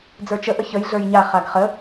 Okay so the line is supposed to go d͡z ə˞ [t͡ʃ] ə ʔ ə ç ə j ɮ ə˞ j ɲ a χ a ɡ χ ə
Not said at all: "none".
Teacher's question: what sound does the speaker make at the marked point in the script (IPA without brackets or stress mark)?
t͡ʃ